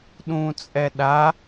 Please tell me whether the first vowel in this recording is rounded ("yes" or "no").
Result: yes